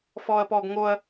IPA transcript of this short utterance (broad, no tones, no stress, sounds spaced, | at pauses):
f ɔː ɐ̯ p ɔː ɡ ŋ o ɐ̯